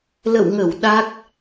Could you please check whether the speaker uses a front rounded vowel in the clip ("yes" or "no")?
no